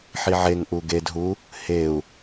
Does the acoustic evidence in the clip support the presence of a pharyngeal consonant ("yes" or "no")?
yes